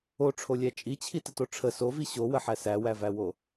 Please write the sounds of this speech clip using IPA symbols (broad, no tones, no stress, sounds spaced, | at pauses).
o ʈ͡ʂʰ o lʲ æ t͡ʃʼ i t͡ɕʰ i t ə t o ʈ͡ʂʰ ə s o v i ɕ o w ə ħ æ s æ w æ v æ w o